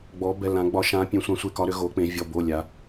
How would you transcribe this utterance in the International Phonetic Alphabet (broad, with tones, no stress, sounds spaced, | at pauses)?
ɡ͡b ɔ˧˥ b ɛ˧˥˧ l ã˧˥ ɡ͡b ɒ˧˥ ʃ ã˧˥ pʲ ẽ˧˥ sʷ ã˧˥ sʷ e˧˥˧ k ɒ˧˥ ɾ ʏ˧˥ ɣ o˧˥ k͡p ẽ˧˥ vʲ ɔ˧˥˧ b o˧˥˧ lʲ a˧˥